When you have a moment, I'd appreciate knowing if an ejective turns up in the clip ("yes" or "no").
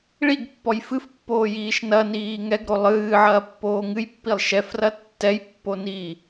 no